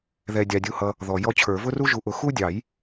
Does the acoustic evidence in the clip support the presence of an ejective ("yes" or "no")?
no